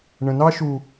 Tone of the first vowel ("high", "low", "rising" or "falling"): low